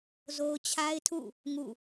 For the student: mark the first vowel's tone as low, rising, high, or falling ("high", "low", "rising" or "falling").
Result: high